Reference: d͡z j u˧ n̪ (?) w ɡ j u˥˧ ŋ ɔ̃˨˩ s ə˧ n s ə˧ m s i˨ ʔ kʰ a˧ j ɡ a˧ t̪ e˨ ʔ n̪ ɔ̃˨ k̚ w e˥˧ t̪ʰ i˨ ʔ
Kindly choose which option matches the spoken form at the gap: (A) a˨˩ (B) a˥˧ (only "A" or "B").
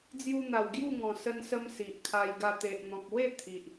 A